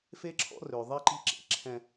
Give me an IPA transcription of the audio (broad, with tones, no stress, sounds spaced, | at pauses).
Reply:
f e˦ ǁʰ ɔ̰˦ r ø˨ ðˤ ɛ˦ ǃ i̤˦ ǁ ḛ˦ ǁʰ ɛ̃˦